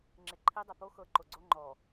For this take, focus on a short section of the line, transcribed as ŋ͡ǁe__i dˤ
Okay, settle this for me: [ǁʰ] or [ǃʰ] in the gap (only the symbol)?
ǃʰ